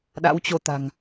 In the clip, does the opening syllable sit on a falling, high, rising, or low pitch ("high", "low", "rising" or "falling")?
rising